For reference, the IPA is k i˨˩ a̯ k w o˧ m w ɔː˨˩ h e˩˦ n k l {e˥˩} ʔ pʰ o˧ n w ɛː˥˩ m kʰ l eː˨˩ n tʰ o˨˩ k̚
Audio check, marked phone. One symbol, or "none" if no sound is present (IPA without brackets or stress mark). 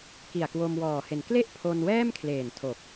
e˥˩